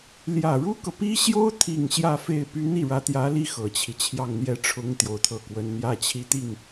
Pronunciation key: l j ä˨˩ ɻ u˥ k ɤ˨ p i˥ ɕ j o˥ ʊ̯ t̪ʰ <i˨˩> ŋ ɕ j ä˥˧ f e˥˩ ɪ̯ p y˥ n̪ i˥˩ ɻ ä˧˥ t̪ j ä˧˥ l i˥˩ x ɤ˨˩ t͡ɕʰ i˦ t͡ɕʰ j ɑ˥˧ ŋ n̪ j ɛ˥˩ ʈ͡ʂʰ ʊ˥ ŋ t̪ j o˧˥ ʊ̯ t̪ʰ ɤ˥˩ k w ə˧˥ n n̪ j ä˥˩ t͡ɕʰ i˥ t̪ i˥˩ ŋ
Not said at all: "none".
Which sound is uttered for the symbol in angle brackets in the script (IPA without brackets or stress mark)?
i˨˩